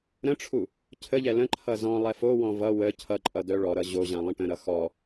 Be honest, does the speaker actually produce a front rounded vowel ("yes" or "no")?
yes